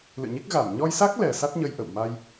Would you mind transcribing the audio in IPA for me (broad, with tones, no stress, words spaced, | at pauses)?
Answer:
lɨ̰˧˨ɲi˦˥k̚ ɣa˧˩m ɲɔ˧jsa˦˥k̚lɛ˨˩ sa˦˥t̚ɲə˧jʔə̰˧˨w ma˧j